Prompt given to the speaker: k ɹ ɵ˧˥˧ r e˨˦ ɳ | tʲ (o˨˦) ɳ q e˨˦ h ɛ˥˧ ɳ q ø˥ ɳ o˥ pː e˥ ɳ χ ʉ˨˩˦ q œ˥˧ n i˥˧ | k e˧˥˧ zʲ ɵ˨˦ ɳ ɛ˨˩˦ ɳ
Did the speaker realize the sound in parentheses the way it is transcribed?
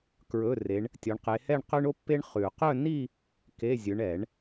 no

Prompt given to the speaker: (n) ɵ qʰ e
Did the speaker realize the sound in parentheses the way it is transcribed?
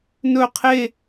yes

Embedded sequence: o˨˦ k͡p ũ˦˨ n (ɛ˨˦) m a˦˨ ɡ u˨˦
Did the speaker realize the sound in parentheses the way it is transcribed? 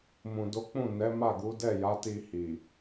yes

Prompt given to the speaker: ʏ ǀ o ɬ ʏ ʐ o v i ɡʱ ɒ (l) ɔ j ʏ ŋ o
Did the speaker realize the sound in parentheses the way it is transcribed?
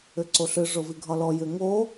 yes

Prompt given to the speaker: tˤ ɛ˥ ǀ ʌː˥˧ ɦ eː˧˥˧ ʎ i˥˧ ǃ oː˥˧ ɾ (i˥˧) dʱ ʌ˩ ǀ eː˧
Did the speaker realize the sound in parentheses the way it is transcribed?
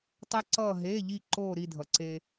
yes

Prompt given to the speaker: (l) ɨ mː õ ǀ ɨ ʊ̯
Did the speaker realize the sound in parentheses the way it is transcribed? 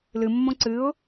yes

